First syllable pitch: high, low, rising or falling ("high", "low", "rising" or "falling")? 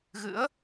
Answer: rising